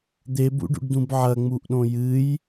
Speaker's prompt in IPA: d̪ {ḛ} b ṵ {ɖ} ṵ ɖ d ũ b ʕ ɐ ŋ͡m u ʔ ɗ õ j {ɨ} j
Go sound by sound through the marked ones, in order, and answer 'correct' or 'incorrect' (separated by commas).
incorrect, correct, correct